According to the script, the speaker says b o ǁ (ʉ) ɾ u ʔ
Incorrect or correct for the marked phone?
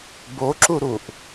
incorrect: u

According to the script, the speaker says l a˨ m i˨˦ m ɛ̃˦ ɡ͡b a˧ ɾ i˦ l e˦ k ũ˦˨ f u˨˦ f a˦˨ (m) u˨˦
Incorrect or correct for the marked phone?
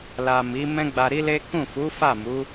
correct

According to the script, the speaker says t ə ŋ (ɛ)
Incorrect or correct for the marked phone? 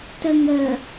incorrect: ə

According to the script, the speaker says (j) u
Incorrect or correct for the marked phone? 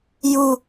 correct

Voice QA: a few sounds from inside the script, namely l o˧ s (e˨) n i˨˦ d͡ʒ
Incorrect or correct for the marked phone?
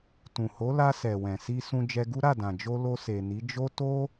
correct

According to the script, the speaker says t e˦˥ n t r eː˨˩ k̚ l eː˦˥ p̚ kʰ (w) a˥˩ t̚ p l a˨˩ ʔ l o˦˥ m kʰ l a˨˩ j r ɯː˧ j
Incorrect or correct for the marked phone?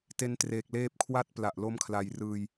correct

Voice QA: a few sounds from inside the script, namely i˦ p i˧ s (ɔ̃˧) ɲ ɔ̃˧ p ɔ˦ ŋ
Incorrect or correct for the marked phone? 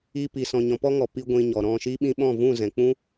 correct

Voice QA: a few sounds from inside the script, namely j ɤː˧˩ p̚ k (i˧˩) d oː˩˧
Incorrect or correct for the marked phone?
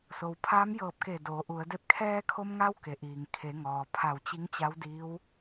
incorrect: e˧˩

